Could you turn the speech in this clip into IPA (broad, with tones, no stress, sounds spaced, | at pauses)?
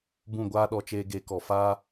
b ũ˦˨ ɡʷ aː˦ ɗ ɔ˧ t͡ʃ eː˧ ɡ e˨˦ k ɔ˨ f aː˦